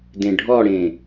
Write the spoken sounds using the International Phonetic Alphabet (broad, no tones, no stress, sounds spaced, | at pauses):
d ẽ ɖʱ ɔ ɽ ẽ